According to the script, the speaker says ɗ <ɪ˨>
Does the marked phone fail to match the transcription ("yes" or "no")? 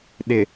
no